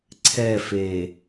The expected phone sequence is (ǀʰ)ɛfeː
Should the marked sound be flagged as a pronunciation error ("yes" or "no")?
no